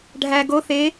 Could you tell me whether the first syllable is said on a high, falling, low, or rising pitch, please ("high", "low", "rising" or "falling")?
low